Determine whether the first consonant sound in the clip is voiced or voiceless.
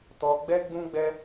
voiceless